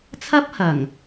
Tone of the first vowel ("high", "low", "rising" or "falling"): high